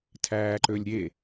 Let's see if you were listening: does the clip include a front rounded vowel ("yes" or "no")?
yes